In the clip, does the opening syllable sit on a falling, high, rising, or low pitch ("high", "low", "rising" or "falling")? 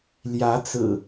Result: rising